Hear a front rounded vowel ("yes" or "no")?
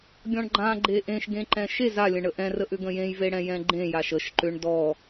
yes